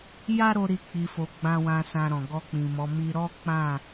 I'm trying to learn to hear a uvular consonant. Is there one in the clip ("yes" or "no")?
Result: no